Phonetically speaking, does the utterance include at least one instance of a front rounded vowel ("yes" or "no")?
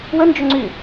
yes